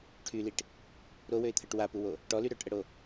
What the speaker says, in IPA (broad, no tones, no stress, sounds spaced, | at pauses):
ʈʰ y l i ʈ | ɾ o w ø ɪ̯ t̪ʰ ə ʈ w a p u w o | ʈ ɔ l y ɾ œ ʈ ʔ ə ɽ o